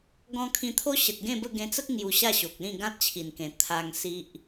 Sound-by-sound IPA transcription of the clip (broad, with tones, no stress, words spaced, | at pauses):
ɡɔ̃˧kʰĩ˧t̪ʰo˦ ɕə˨t̚ɡẽ˥˧bə˥˧ ɡẽ˧t͡sə˦k̚ ŋju˧ɕa˥˧ɕo˨k̚lĩ˥˧ ɡã˦t̚t͡ɕʰi˨˩nkẽ˨˩ t̪ʰa˧ŋsi˦ʔ